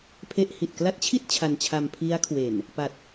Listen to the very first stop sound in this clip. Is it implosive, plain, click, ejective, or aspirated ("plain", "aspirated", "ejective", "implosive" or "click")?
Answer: aspirated